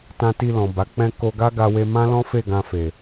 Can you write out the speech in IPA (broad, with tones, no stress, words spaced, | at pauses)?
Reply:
tã˧ti˧lɔ̃˨ ba˨˦k͡pɛ̃˦ ko˧ɡa˦ɡa˧we˧ mã˦lɔ̃˦fe˦˨ ɡã˧fe˨